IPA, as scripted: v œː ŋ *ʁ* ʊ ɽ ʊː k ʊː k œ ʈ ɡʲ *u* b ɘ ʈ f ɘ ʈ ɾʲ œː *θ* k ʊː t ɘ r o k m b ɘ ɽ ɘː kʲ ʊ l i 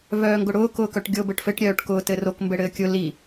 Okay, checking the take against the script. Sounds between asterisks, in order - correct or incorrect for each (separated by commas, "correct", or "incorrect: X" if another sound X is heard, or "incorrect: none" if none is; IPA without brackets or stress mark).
incorrect: ɡ, incorrect: o, incorrect: ʈ